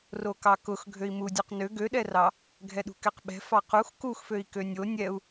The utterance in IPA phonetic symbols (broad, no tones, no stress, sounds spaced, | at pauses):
r o k ɑ k ʊ x ɡʱ ø i̯ m u dʲ o q n ø ɡ ø ɗ ɛ r ɑ | ɡʱ ɛ ɗ ṳ k ɛ q ɓ ɛ̤ f ɑ q u x k u x f ø i̯ k ø nʲ o nʲ ɛ u̯